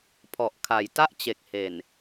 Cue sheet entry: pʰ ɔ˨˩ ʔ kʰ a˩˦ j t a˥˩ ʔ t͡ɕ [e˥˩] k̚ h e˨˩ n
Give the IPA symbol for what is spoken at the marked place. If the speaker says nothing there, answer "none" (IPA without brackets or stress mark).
e˨˩